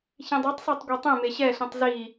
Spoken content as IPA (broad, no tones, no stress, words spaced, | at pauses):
çĩdˤɛtˤsˤætˤ ɡʷetˤẽme ɕɛɬĩtˤ zi